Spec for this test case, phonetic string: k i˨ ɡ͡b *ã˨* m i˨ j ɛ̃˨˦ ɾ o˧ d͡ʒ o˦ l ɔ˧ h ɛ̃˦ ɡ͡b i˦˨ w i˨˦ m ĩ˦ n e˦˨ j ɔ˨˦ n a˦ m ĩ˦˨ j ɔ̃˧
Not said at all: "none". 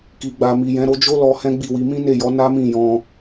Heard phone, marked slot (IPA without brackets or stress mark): a˨